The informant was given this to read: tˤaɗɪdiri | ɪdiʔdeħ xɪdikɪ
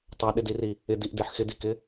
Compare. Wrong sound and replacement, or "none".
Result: none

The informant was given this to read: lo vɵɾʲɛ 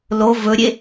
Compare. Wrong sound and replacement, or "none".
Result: ɛ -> e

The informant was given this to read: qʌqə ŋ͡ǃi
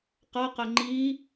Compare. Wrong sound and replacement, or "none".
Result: none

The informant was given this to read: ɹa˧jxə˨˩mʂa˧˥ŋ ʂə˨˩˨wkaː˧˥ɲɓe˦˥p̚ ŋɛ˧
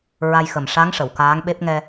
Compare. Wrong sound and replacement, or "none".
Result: ɲ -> ŋ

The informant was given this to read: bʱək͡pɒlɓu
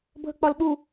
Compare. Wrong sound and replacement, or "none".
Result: none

